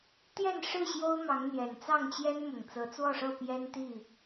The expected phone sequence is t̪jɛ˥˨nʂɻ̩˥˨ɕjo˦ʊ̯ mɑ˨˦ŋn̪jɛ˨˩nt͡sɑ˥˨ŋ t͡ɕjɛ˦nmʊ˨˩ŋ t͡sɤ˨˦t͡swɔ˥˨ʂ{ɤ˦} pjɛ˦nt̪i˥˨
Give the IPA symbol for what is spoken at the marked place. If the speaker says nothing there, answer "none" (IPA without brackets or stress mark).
ɤ˥˨